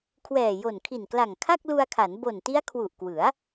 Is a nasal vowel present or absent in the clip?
absent